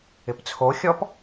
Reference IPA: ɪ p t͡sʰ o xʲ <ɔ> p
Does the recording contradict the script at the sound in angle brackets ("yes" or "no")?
no